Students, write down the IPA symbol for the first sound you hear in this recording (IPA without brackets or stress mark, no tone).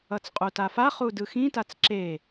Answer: ʌ